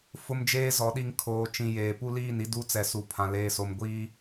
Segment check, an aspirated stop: present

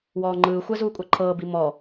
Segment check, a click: present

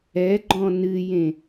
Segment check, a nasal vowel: present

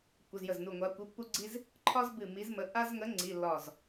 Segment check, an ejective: absent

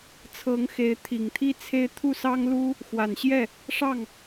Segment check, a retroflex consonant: present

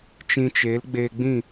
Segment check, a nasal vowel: present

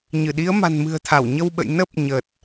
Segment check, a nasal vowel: absent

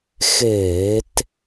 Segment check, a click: absent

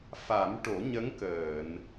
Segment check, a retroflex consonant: present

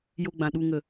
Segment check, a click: absent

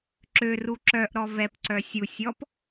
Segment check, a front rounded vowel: present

